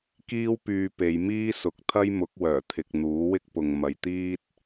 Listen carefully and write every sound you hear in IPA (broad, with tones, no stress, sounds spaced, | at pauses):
k iː˥ w p yː˧ p e˨˧ j m iː˥ s ʊ˨ k̚ t̪ʰ ɐ˥ j m ʊ˨˥ k̚ w œː˨˩ t̪ʰ ɪ˨ k̚ n̪ uː˨˥ w ɪ˥ k̚ p ʊ˨ ŋ m ɐ˨ j t̪ iː˥ t̚